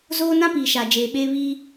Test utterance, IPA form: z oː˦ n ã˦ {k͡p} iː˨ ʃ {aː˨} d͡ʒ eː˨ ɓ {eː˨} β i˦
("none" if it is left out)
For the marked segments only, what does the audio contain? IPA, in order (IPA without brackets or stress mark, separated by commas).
p, a˨, eː˦